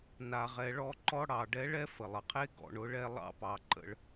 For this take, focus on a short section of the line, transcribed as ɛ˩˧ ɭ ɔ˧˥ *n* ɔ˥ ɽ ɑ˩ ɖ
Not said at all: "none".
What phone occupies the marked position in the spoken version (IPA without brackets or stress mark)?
ǃ